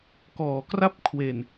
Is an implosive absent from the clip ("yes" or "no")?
yes